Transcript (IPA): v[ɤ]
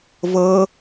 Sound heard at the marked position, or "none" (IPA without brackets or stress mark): ɤ